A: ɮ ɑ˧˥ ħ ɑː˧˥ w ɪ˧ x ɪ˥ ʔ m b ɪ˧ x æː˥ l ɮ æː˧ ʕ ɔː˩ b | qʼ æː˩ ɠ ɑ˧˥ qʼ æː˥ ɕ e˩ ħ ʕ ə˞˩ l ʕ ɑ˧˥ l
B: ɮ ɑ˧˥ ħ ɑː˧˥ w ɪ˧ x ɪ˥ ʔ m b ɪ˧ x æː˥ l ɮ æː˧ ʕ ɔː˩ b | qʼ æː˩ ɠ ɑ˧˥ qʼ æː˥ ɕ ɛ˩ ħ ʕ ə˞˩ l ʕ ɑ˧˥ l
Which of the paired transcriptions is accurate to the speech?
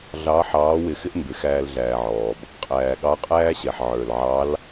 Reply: B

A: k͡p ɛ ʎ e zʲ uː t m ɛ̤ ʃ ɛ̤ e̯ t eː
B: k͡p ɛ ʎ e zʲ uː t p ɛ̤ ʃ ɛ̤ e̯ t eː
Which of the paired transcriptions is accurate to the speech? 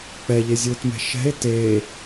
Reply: A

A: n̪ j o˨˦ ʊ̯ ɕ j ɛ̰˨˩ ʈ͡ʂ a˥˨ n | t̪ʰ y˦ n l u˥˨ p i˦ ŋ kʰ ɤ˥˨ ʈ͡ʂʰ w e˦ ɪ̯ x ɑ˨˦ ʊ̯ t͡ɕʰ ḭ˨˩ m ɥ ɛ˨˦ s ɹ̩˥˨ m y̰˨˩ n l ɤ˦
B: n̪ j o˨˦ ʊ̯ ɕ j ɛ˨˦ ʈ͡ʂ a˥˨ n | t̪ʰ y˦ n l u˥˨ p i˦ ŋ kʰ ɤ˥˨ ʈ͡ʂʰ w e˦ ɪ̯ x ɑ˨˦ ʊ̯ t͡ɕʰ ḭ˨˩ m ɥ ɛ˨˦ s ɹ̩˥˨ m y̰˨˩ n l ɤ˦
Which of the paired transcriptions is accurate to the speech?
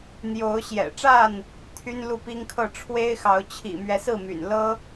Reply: A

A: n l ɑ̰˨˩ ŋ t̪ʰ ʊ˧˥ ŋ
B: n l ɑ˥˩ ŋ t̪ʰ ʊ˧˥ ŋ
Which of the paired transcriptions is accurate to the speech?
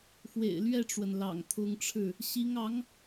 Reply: A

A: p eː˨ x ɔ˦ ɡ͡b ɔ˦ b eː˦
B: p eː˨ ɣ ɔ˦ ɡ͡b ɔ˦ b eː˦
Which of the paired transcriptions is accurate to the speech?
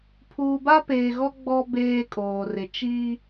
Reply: B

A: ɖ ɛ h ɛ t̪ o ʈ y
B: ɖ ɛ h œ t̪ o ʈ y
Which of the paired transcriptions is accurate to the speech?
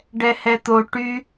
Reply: A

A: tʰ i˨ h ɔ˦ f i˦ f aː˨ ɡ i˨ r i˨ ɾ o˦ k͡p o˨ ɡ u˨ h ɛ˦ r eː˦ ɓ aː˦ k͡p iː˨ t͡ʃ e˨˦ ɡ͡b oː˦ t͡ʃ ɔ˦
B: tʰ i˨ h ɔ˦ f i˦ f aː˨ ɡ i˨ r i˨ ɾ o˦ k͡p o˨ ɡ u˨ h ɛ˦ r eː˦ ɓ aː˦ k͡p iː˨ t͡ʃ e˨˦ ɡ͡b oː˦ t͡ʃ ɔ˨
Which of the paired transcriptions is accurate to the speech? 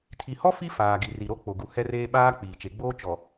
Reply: B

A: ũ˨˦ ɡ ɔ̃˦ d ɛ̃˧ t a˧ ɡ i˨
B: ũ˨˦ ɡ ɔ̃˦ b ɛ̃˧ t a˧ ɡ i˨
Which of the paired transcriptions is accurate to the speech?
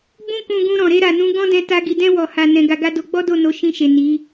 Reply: A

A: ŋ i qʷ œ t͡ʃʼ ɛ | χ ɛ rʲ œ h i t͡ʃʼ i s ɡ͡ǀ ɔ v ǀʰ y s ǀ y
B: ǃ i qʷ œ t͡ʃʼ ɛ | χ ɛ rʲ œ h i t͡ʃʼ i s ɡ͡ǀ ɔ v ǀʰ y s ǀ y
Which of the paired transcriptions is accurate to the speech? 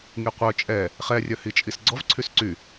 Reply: A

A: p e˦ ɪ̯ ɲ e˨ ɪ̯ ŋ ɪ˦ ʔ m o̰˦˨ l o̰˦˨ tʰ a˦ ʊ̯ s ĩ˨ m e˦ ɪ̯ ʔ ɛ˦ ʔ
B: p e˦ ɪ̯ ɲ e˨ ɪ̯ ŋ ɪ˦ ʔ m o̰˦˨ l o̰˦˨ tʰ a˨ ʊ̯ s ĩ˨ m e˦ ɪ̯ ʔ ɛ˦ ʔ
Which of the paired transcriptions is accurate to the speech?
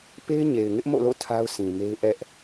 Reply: A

